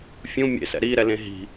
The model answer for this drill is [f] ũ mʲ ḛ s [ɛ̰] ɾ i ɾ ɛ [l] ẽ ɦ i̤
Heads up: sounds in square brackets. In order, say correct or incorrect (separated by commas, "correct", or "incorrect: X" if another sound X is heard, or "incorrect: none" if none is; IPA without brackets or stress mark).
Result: incorrect: fʲ, correct, correct